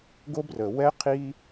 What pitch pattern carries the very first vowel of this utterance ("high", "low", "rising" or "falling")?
high